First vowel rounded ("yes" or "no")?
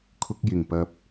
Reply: yes